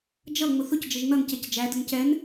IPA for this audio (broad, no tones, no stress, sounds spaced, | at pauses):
d͡ʒ ʌ ŋ͡m ʊ θ ʊ c d͡ʒ ə ʒ n ʌ n c ɛ c d͡ʒ æ d ə n c ɛ n